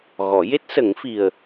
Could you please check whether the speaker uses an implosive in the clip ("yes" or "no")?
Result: no